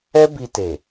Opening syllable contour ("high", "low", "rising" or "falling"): high